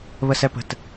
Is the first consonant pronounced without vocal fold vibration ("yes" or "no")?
no